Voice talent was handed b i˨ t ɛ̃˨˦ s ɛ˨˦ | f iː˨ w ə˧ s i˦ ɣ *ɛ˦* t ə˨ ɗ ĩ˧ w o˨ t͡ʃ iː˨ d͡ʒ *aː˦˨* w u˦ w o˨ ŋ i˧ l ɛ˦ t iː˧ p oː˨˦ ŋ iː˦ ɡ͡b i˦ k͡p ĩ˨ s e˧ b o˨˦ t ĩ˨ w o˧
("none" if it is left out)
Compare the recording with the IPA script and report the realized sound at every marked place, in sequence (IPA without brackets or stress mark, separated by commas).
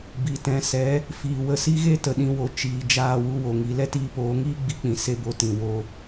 e˦, aː˦˨